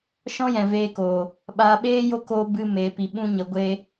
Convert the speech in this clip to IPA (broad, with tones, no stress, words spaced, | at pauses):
ʃɔ̃˦jɛ̃˨veː˧koː˨ | ɓaː˧ɓeː˦jo˦ koː˦ bɨ˦me˧pi˧ ɓũ˦ɲə˧ɡʷe˦